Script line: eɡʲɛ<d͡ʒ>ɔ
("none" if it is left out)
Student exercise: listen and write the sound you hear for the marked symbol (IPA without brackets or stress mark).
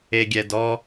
d